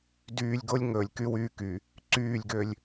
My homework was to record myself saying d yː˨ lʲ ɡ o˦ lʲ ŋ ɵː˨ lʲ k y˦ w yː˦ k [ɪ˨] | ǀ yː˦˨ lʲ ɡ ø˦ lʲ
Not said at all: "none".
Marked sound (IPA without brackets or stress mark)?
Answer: y˨